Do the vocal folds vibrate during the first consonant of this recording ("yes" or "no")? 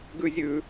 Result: yes